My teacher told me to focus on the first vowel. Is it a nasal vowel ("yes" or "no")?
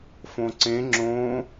yes